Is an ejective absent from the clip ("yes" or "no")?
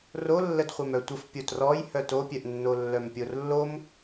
yes